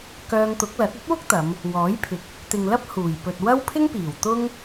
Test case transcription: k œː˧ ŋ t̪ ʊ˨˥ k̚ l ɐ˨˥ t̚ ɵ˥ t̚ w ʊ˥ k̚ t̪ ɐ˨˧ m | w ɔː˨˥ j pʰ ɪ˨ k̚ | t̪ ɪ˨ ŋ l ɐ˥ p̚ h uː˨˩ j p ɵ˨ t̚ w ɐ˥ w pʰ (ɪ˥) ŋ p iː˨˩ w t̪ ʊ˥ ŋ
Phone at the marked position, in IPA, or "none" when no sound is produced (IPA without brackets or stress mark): ɪ˥